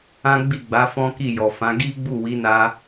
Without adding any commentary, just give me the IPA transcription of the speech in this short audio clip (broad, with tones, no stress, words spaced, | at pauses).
ã˦ɡ͡bi˦˨ɡ͡ba˨˦ fɔ̃˦ki˦˨jɔ˨fã˨˦ ɡi˦ɡ͡bu˦˨wi˨˦na˧